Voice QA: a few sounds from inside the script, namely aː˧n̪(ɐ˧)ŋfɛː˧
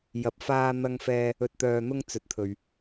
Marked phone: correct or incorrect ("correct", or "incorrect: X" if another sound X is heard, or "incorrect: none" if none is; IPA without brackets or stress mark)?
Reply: correct